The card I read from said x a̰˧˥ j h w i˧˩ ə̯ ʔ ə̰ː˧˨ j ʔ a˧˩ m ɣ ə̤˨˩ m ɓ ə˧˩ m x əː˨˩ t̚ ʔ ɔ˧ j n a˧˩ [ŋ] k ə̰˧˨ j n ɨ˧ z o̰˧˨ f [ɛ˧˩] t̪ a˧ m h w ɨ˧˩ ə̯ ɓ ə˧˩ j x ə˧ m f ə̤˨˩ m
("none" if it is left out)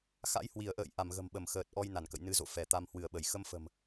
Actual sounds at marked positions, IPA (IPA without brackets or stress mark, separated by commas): n, ɛ˧˩